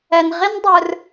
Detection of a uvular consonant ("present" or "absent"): present